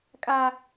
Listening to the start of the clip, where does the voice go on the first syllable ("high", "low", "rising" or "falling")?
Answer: high